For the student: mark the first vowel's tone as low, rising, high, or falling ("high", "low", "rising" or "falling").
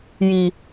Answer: low